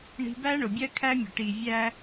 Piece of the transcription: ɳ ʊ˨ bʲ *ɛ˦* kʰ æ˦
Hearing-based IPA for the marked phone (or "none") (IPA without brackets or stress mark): ɜ˦